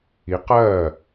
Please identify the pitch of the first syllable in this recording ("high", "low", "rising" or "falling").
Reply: rising